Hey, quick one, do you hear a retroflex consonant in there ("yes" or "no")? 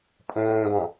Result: no